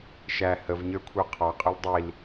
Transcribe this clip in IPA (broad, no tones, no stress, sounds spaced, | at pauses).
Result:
ʃ æ h ə v ɲ ə˞ kʷʰ ə˞ qʰ ɑ qʼ ə l dˤ i l